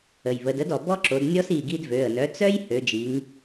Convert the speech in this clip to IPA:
ə˩ j β ə˩˧ d ə˩˥ d ɔ˩ b ɔ˦ ǁ o˩˧ d nʲ ɔ˦ s i˩˧˩ ɡ i˦ d v ø˩˧˩ ə̯ n œ˩˥ t͡s œ˦ j h ø˩˧ d͡ʒ i˩˧ ŋ

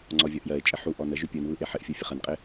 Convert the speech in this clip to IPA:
ŋ͡ǀ ɔ vʲ ɔ ʔ j ɜ ɪ̯ t͡ʃʼ ɪ ħ u ʔ ɔ n ə ʒ y pʲ ɯ n β ɯ ʔ e ħ ɪ ʔ fʲ o fʲ ə χ ə n qʼ ɪ

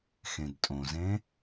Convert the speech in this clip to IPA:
x ẽ d tʼ õ z ẽ

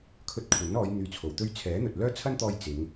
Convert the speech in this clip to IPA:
kʰ ɵ˧ t̚ kʷʰ ɐ˨˥ n ɔː˨˧ j n̪ yː˧ t͡sʰ o˨ w t̪ ɵ˥ ɥ t͡sʰ ɛː˨˥ n̪ ɵ˨ t̚ l œː˥ t͡sʰ ɐ˥ n t̪ ɔː˧ j t͡s ɪ˨˧ ŋ

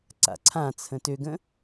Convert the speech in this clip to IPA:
ǀ a̰ ǀʰ ã t͡sʰ ə̃ t ø ɡ ə̃

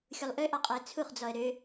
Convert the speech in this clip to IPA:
xʲ u lˠ ʔ ø ʔ ɑ qʼ ɑ ə̯ t͡sʰ u χ d͡z ɔ ə̯ ɾ ø

